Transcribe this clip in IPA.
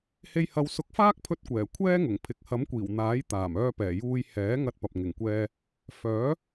h e˧ j h ɐ˨˧ w s ʊ˨˥ k̚ f aː˥ k̚ pʰ ɵ˧ t̚ kʷ ɛː˨˩ kʷʰ ɛː˥ ŋ ʊ˨˩ ŋ pʰ ɪ˨ k̚ h ɐ˨˥ m kʷ iː˨˩ w n̪ aː˨˥ j t̪ aː˨˩ m œː˧ p ɛː˨˩ j uː˧ j h ɛː˨˥ ŋ ɐ˧ t̚ p ɐ˨ p̚ ŋ ɪ˨˩ ŋ kʷ ɛː˧ | f œː˨˥

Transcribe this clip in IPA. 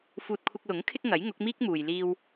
f uː˧ t̚ kʷʰ ɪ˧ k̚ l ʊ˨˥ ŋ kʰ ɪ˥ k̚ ŋ ɐ˨˥ j ŋ ʊ˨˥ k̚ m iː˥ k̚ m uː˨ j l iː˧ w

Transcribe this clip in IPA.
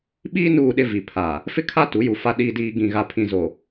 ɓ iː˦ n uː˦˨ ɗ ɪ˦ v i˨ pʰ aː˨ | f ɪ˦ kʰ a˦ t u˨˦ j u˨ f a˨ ɗ iː˨ d iː˨ ɡ ĩ˨ ɣ a˨ pʰ ĩ˨ z o˨

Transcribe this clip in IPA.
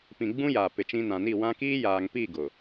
p ĩ˨ ɡ͡b ũ˦ j aː˨ p ɪ˨ t͡ʃ ĩ˦ n ã˨ n i˦˨ w ã˦ k iː˦ j aː˨ ŋ p i˦˨ ɡ ʊ˨

